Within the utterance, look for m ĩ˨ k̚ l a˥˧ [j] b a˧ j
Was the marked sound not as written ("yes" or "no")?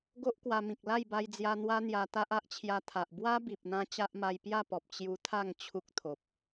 no